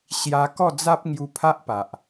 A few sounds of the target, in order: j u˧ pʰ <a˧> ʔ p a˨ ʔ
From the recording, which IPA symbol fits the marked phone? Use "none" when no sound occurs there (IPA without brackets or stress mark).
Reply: a˦